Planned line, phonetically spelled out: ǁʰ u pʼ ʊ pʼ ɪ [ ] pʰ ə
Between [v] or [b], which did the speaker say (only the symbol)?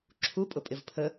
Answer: v